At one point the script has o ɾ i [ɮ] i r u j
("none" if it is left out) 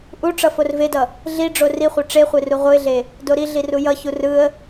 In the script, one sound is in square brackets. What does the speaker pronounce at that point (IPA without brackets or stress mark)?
ɮ